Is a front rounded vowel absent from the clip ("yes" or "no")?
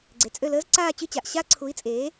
no